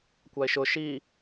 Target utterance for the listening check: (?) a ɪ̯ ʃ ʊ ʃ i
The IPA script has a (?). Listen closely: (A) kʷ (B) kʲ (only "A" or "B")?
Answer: A